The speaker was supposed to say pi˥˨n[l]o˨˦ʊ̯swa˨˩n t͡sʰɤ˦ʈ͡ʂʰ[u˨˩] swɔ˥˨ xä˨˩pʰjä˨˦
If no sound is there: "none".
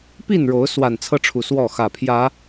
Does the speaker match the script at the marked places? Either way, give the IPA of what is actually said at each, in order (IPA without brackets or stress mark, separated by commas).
ɻ, u˨˩